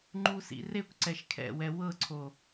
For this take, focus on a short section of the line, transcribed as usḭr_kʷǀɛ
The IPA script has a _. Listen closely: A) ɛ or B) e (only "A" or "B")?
B